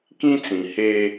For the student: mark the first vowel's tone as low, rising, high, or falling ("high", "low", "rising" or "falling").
high